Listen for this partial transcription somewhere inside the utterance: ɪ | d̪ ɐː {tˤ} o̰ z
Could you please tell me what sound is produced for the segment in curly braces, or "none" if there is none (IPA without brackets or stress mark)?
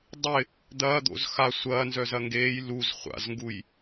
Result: d̪